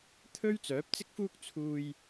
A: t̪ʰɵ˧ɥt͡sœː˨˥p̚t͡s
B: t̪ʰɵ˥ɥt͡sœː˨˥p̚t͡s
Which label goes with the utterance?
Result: B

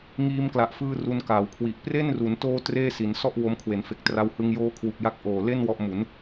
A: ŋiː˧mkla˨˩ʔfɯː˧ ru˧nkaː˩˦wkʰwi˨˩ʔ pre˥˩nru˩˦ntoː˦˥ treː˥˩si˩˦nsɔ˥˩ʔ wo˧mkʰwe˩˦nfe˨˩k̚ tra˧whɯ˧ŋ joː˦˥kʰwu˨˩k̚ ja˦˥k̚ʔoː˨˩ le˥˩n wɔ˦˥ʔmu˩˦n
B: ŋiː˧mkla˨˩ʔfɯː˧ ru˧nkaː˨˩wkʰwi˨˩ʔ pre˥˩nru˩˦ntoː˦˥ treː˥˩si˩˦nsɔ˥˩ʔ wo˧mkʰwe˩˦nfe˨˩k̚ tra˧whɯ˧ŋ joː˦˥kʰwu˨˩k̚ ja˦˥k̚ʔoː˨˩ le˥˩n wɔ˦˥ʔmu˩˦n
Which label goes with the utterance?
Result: A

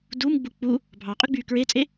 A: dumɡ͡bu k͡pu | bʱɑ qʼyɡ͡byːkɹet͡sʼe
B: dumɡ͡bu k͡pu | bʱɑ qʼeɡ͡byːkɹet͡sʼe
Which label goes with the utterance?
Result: A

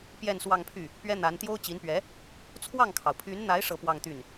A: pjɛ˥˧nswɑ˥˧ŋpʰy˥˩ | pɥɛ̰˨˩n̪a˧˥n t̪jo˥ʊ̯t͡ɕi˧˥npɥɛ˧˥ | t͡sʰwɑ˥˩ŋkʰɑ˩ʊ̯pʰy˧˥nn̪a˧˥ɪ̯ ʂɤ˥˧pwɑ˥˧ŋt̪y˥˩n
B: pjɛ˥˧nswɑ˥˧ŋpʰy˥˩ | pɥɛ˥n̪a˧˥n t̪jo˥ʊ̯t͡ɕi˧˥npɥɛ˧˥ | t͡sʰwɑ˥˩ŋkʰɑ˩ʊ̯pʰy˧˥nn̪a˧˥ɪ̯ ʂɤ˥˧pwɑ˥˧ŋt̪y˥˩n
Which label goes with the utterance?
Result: B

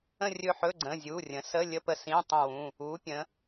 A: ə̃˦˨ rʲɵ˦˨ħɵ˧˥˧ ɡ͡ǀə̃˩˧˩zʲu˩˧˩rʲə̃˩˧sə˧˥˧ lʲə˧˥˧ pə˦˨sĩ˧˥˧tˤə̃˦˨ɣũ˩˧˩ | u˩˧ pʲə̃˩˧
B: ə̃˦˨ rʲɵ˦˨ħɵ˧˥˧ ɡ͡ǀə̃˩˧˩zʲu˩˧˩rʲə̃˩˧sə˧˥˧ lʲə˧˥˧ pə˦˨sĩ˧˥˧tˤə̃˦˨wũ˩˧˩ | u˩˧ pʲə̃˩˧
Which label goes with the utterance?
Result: B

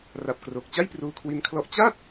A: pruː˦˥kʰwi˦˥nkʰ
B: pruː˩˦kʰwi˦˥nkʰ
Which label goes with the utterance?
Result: A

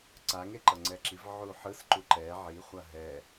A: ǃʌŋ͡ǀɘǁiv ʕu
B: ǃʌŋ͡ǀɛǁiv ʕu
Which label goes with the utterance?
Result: B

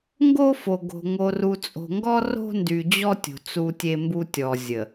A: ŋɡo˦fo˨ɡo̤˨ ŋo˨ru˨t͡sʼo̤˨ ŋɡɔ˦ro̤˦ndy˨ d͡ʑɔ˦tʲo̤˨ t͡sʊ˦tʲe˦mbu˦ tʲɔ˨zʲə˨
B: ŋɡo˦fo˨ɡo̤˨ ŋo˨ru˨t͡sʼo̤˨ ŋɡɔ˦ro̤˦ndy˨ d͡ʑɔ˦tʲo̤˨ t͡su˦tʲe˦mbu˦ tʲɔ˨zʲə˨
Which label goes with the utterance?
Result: B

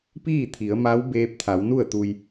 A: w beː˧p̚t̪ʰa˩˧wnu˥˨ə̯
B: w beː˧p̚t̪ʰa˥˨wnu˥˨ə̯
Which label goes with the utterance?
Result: A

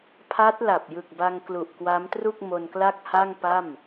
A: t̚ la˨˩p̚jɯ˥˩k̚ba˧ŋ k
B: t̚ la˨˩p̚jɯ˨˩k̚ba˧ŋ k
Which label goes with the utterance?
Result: B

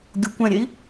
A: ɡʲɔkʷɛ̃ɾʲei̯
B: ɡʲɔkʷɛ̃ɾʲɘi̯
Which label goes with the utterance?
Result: A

